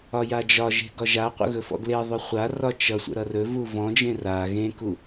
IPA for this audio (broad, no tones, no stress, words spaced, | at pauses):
ɒjad͡ʒɒʒe̤ ɡɒʒaqʷə̰ ɣɵfɔ̰ɡleðˤɵ χʷa rɒt͡ʃʌsʷə̰ ɾʌrɵvu vɔ̃d͡ʒẽ ra ɣẽku